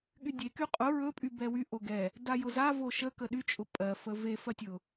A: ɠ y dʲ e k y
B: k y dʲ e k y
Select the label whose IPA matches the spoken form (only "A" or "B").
A